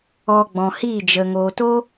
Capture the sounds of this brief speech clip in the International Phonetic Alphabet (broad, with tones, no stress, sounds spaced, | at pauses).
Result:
ɔ˧ ɡ͡b ɔ̃˨ h iː˦˨ d͡ʒ ə˨ ŋ oː˨ t o˦